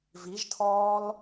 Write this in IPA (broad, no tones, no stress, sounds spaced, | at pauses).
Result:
v i ʒ tʰ ɔː l